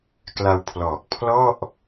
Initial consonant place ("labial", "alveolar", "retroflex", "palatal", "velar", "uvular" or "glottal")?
velar